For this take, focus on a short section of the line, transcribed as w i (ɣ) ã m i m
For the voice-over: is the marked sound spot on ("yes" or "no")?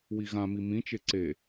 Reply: yes